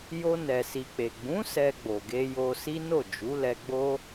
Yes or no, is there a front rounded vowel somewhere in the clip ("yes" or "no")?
no